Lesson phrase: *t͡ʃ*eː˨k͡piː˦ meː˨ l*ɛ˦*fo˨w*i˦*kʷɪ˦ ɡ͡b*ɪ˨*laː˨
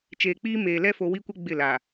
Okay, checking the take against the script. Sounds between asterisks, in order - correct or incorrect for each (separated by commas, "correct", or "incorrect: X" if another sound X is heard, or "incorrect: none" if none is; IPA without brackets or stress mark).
correct, correct, correct, incorrect: ɪ˦˨